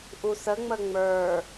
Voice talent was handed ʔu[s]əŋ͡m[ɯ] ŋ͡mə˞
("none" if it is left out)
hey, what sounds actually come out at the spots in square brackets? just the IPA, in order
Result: s, ə

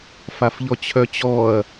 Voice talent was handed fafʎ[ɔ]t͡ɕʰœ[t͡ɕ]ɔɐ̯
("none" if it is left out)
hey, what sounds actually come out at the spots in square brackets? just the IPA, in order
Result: ɔ, t͡ɕ

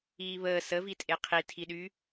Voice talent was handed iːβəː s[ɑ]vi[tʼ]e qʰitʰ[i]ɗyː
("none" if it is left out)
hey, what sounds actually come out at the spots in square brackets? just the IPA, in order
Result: ə, tʼ, i

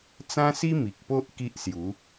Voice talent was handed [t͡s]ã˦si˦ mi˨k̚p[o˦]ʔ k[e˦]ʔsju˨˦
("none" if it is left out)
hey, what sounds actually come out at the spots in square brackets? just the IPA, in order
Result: t͡s, o˦, i˦

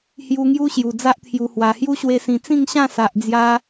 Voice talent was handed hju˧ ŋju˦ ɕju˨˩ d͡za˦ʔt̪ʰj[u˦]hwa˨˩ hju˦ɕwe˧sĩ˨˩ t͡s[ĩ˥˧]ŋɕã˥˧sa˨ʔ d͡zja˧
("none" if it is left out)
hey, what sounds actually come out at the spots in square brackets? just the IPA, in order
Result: u˨˩, ĩ˥˧

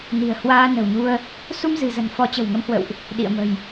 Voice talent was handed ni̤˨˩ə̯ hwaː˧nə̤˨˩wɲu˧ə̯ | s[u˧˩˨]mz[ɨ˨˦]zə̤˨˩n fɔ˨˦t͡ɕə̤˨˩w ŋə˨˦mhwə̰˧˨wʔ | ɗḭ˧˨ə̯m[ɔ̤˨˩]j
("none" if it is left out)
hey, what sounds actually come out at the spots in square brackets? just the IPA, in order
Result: u˧, ɨ̤˨˩, ə̤˨˩

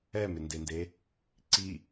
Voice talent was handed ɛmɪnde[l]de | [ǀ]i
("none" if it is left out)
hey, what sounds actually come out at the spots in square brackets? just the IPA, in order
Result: n, ǀ

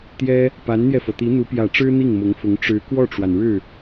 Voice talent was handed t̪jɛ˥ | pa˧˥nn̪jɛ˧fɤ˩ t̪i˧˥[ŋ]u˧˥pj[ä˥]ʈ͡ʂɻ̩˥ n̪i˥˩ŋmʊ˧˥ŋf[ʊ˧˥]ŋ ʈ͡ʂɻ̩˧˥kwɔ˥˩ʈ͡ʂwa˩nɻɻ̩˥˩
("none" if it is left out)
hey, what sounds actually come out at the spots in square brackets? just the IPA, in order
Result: n̪, ä˨˩, ʊ˧˥

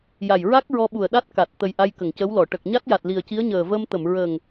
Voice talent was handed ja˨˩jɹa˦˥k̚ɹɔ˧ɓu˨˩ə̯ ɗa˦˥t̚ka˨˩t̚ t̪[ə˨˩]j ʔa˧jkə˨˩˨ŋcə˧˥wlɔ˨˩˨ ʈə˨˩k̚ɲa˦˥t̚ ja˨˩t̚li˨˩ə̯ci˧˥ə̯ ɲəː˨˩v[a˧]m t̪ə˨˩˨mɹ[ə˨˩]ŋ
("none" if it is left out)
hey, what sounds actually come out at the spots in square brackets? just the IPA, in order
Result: ə˨˩, ə˧, ə˨˩

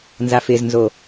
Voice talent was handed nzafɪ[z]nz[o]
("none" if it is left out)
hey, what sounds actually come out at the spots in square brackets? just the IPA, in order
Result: z, o

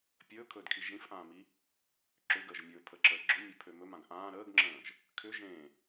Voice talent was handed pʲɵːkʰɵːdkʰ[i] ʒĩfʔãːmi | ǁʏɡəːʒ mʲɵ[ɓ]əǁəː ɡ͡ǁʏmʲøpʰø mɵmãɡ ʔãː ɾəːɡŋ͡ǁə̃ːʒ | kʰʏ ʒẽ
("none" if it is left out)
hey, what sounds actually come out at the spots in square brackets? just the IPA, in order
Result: i, pʰ

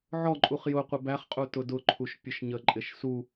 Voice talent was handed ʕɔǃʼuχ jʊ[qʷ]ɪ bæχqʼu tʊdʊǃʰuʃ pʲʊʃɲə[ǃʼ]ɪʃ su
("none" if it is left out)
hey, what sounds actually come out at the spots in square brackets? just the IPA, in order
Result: qʷ, ǃʼ

